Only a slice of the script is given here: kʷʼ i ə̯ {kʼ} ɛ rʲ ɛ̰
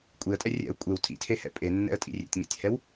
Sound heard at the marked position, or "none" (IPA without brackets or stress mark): tʼ